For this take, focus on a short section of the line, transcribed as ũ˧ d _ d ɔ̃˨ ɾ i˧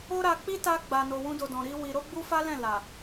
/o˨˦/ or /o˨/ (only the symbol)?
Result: o˨